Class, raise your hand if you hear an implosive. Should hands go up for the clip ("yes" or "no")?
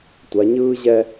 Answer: no